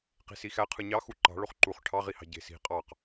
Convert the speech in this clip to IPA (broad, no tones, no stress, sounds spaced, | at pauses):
q i̤ s i x æ qʰ ɯ ɲ ɑ x u ǃ ɑ̤ ɭ o χ ǃ u χ ʈʰ ɑ ʁ i h ɑ̤ ɟ e̤ s i̤ qʼ ɑ q